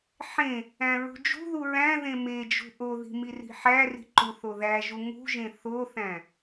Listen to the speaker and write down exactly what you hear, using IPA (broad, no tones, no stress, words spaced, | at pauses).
ħẽ | æ̃ɹṳd͡ʒṳðu ɹæ̃ ðẽmed͡ʒṳ ʔoði̤ miri̤ħæri̤ ǃuθoðæʒu ŋṳʒẽ θoθæ̃